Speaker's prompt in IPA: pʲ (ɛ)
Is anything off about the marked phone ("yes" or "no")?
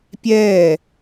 yes